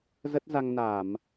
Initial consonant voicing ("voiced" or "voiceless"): voiced